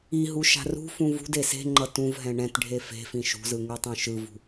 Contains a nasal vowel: yes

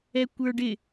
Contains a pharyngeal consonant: no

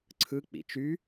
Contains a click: yes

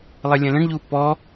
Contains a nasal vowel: yes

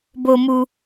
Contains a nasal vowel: no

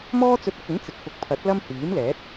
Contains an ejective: no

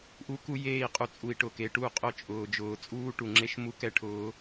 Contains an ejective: yes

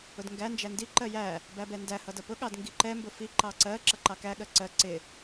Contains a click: yes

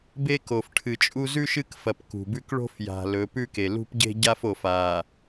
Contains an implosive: no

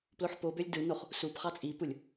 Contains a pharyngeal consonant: yes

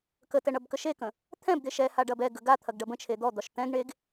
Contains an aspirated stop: yes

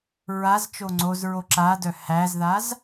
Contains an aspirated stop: no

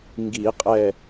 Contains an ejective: yes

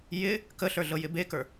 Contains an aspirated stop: no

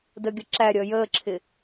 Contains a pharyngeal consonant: no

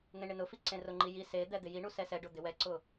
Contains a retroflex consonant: yes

